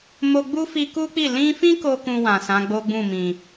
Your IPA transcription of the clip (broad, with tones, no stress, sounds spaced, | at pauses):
m o˧ ɡ͡b u˦ f i˧ k u˦ k͡p i˦˨ l ĩ˧ f ĩ˦ k o˦ k ũ˧ w ã˨ s ã˨˦ ɡ͡b o˦ ɡ͡b ũ˦˨ m ĩ˨